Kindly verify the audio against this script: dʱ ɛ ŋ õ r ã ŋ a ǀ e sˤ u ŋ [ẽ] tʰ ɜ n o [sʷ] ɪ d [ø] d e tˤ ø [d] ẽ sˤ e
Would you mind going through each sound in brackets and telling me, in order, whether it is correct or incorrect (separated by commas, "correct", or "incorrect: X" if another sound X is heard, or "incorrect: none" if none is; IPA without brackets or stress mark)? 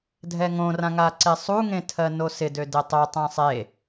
correct, incorrect: s, correct, incorrect: tˤ